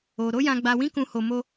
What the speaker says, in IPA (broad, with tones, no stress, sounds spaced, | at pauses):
o˧ ɾ o˦ j ã˧ ɡ͡b a˧ w ĩ˦ k ũ˧ h o˧ m o˦